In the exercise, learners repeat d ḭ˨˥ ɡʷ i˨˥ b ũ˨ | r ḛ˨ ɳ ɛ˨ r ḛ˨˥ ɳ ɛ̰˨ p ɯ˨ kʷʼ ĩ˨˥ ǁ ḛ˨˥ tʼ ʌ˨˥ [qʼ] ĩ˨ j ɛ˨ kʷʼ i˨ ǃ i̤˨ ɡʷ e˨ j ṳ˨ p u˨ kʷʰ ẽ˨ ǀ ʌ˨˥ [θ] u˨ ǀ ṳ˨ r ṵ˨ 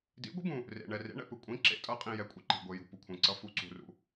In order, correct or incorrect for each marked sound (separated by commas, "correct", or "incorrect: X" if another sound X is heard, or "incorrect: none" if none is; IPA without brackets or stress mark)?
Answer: correct, incorrect: f